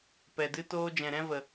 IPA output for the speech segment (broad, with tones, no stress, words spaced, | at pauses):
pɛ˨dɨ˦toː˦ d͡ʒɛ̃˨ɾɛ̃˦və˨